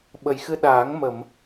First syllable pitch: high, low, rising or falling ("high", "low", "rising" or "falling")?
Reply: low